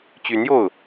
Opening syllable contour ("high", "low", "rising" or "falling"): rising